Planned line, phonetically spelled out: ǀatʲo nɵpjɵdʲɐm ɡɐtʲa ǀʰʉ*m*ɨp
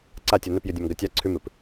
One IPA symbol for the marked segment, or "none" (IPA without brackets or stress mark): m